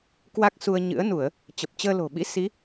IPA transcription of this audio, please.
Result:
k w a˦˥ k̚ s u˧ ə̯ ɲ ɨ̰˧˥ ə̯ n u˧˩˨ ə̯ | t͡ɕ ə˨˩ p̚ t͡ɕ əː˧ l o̤˨˩ ɓ ḭ˧˥ s i˨˦

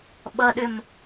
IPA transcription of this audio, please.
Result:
ɓ ʌ ɗ ʏ m

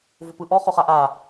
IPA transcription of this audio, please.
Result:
v ʊ p ɯ ʔ ɔ χ ʊ χ a ʔ a

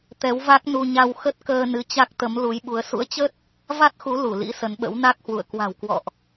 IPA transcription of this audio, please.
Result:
t̪ ɛ˨˦ w v a˦˥ k̚ n u˧ ɲ a˧ w x ə˦˥ t̚ k əː˧ n ɨ˨˦ t͡ɕ a˦˥ k̚ t̪ ə˨˦ m l u˨˦ j ɓ u˨˦ ə̯ s ṵ˧˥ ə̯ t͡ɕ ə˦˥ t̚ | v a˦˥ t̚ x u˨˦ l u˧˩ l ḭ˧˥ s ə˨˦ n ɓ ə̰˧˥ w n a˦˥ k̚ h w ṵ˧˨ ə̯ k w a̤˨˩ w k w ɔ̰˧˨ ʔ

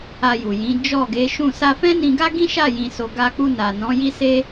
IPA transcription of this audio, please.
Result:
a˧ j u˨ j ĩ˨˦ d͡ʒ ɔ˦˨ ɡ e˨˦ ʃ ũ˦˨ s a˧ f ɛ̃˦ n ĩ˧ ɡ a˦ ɡ ĩ˦ ʃ a˦˨ j ĩ˧ s o˧ ɡ a˧ k͡p u˧ n a˨ n ɔ̃˨˦ j i˦ s e˦

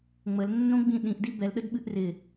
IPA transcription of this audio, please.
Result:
ŋ͡m ə l nː õ ɡ͡b ĩ ɗ ĩ ʔ d i b ɛ l ɗ ə d ɓ ɨ ʔ r ɪ

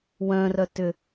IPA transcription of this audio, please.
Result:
w œ̃ r œ t ʏ

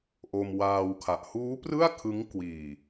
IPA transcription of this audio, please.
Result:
ʔ o˧ m w aː˧ w kʰ a˨˩ ʔ h uː˦˥ p r ɯ˥˩ a̯ kʰ ɯ˦˥ ŋ k w iː˨˩

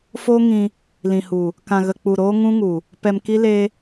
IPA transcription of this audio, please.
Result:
f oː˦ ŋ ĩ˧ | l ĩ˨ h u˨ | k ã˨ ɣ ə˨ k͡p u˨ ɾ oː˦ ŋ ũ˦ ŋ u˨ | p ɛ˧ m k i˦ l e˦

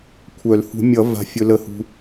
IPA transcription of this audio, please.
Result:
kʷʰ œ˨˩˦ l h ṳ˨˩˦ mʲ ʌ˨˩˦ v a̤˨ fʲ ɵ˨ l ə˨ h ṳ˨

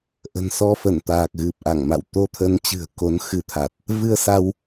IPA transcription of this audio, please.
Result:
ʔ ə̤˨˩ n s ɔ˧ f ə˧˩ n t̪ aː˨˩ k̚ ɣ ɨ˨˩ p̚ ʔ a˧˩ ŋ m a̰˧˨ w t̪ o˧ t̪ʰ ə˨˦ n t͡ɕ ɨ̤˨˩ ə̯ k o˨˦ n x ɨ˨˦ t̪ʰ a˨˩ t̚ | v ɨ˧ ə̯ s a˧ w

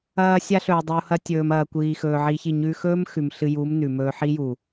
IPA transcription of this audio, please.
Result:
ɐː˧ sʲ a˦ ɬ ɵː˨ dˤ u˨ h ɐ˧ tʲ ɵː˨ m ɐː˨ kʷ iː˨ x ɵː˨ ʕ i˧ ç i˦˨ ɲ ʉ˧ x ɵː˦ m x ʉ˨ m ɬ ɨ˧ j u˨˦ m n ʉ˨ m ɵː˧ ħ i˦ j u˨

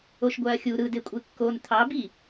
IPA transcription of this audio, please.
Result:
o ʃ ɡʷ æ ɐ̯ xʲ u ɾ ɯ d e kʷʼ e kː o n t̪ʰ ɑ b i

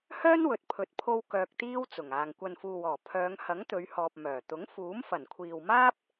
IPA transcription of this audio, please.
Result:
h œː˥ n w ɵ˨ t̚ pʰ ɵ˨˥ t̚ pʰ o˧ w k œː˧ k̚ t̪ iː˥ w t͡s ʊ˨˩ ŋ aː˨ ŋ kʷ ɐ˨ n f uː˨ w ɔː˨˩ pʰ œː˨˧ ŋ h ɐ˨˥ ŋ t̪ ɵ˨˧ ɥ h ɔː˨ p̚ m œː˨˩ t̪ ʊ˨˥ ŋ f uː˨˥ m f ɐ˨˩ n kʷʰ iː˨ w m aː˥ p̚

